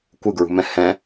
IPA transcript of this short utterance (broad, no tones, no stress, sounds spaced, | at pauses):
kʷ ɯ ɡ ɹ ṳ m ɛ̃ h ɛ̃